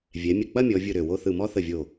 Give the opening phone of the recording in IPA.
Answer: vʲ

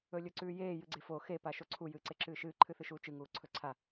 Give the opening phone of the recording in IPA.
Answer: ɵ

